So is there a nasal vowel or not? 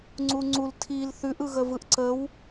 no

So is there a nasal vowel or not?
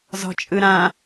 yes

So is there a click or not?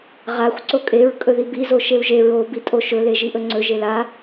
yes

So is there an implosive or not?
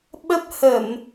yes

